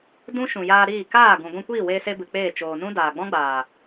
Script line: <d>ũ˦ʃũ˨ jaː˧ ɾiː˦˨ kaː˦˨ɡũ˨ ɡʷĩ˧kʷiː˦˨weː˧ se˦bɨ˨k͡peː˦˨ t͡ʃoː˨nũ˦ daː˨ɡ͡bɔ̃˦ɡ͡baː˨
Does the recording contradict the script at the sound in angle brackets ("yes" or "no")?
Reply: no